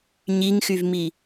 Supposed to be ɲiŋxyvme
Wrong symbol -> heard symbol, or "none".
e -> i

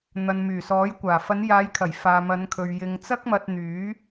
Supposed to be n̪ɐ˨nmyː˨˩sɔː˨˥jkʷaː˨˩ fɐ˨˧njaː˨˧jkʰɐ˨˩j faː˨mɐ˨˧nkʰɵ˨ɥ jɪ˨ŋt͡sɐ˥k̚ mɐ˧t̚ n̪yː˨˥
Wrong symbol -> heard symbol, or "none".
none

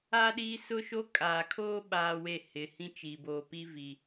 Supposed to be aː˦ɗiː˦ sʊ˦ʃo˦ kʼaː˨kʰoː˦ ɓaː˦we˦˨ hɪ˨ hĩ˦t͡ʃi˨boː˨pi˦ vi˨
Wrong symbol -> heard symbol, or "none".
none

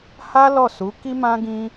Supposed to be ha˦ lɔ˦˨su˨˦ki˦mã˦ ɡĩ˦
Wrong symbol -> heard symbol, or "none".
none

